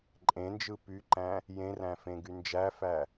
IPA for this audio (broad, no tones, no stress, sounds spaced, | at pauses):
ǃʼ ẽ n d͡ʒ ɯ p y ǃ æ̃ | j ẽ r æ̃ f ẽ ɡ y n d͡ʒ æ f æ